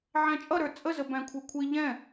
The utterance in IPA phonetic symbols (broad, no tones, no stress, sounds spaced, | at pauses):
ʕ æ̃ t͡ʃʼ ʌ ɾ ə˞ t͡sʼ ə z ə b æ̃ kʷʰ ɛ kʷʰ i ʎ ɛ̃